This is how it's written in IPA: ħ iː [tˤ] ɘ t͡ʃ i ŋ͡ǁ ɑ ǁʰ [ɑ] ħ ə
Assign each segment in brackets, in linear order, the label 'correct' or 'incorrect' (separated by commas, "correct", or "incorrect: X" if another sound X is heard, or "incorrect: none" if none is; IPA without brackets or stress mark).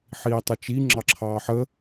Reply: correct, incorrect: ɑː